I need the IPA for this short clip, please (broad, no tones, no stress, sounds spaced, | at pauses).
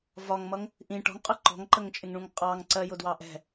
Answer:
v ɒ ŋ m ʌ ŋ | ʔ ĩ ʈ ɔ̤ ŋ qʼ ʊ ǃ ɔ̤ ŋ ǃ ə ŋ t͡ʃʼ ɪ ŋ ɳ ũ ŋ qʼ ɑ ŋ ǀ ɜ j ʊ d w ɑ ʔ ɛ̤